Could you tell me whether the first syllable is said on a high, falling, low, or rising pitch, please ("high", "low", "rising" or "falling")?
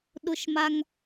low